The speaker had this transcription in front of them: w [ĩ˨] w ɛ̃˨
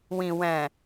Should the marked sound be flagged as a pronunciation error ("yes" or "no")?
no